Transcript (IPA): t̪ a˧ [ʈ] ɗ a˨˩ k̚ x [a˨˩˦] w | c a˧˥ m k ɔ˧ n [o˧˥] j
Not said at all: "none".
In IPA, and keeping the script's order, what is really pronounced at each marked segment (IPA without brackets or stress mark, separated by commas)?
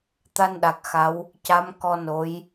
n, a˧˥, o˧˥